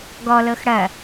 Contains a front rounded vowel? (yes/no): no